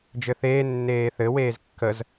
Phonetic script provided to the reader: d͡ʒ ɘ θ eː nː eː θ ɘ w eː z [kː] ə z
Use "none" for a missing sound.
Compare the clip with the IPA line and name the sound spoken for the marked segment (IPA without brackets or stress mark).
kː